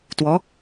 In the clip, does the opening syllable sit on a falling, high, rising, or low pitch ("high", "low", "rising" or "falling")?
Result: rising